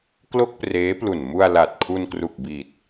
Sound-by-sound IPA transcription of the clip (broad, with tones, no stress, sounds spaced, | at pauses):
k l o˥˩ k̚ p r eː˦˥ p l u˨˩ n m u˧ a̯ l a˨˩ t̚ kʰ u˧ n k r u˨˩ k̚ b i˨˩ t̚